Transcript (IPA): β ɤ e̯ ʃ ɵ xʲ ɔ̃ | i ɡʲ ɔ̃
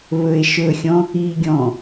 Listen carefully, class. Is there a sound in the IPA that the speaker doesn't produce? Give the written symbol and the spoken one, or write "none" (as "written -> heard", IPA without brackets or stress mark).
ɤ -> ɵ